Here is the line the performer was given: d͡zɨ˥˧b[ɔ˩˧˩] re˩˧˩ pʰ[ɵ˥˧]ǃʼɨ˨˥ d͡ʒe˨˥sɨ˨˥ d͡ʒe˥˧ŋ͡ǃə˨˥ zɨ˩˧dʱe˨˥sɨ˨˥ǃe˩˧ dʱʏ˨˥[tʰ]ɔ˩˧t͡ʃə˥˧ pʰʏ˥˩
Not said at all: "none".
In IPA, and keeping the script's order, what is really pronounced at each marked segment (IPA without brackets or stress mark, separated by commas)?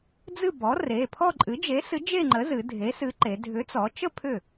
ɔ˨˥, ɔ˥˧, t͡s